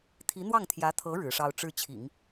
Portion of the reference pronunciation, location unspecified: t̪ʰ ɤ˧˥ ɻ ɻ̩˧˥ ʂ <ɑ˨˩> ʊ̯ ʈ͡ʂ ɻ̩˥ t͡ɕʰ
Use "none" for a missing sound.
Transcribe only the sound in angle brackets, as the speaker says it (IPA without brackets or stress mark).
ɑ˥